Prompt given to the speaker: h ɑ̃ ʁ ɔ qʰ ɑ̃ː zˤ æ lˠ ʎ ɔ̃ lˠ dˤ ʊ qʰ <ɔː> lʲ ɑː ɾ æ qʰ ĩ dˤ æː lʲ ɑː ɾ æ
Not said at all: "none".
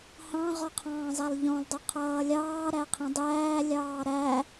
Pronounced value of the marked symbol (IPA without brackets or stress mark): ʌː